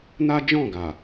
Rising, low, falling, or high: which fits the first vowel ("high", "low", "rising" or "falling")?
high